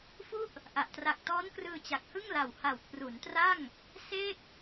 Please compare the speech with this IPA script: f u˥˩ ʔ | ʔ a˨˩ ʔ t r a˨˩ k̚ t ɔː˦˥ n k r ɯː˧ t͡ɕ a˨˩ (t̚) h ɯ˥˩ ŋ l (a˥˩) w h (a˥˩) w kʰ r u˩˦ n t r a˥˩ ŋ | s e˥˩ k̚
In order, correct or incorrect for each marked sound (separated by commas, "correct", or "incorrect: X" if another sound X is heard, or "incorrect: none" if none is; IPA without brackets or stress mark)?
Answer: incorrect: k̚, incorrect: a˨˩, incorrect: a˨˩